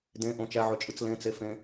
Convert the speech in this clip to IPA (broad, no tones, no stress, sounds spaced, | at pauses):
d ẽ ʔ õ t͡ʃ æ ʕ ø t͡ʃʼ ɯ t͡s l ẽ t͡s e f ẽ